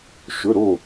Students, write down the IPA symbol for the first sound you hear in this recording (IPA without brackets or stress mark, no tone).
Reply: ʃ